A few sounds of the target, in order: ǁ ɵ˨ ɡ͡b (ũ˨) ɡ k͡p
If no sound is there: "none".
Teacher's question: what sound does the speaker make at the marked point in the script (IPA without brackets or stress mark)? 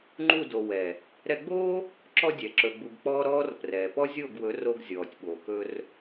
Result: u˨